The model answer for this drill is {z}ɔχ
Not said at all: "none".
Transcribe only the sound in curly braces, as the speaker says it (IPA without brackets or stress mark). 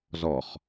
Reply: z